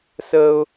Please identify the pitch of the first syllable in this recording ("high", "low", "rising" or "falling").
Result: high